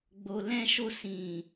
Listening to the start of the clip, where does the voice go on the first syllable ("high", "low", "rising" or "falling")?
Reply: low